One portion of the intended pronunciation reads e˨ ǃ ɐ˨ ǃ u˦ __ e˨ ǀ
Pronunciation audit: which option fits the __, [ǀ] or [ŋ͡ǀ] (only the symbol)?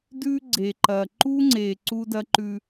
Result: ŋ͡ǀ